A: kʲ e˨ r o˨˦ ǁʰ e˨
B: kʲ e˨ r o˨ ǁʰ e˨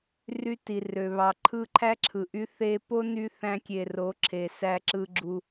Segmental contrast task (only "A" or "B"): A